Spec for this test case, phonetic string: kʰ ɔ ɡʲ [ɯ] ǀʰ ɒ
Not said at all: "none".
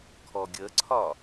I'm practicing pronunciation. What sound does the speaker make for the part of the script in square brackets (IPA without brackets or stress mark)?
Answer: ə